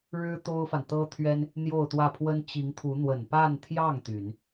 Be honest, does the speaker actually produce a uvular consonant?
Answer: no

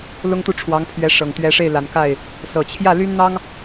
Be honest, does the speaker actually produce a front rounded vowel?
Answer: yes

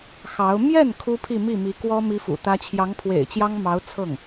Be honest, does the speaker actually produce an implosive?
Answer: no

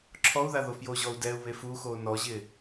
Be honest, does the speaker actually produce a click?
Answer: yes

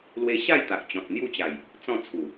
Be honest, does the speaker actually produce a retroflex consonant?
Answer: no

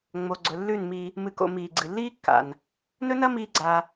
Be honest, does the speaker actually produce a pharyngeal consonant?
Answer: no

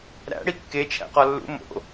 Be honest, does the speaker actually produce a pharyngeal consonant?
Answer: no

